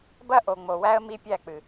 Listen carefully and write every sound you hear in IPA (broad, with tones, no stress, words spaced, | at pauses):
bɐ˦ʔo˨ŋ͡mo˨wæ˦ə̯ mi˦pʲæ˦˨k͡pɨ˨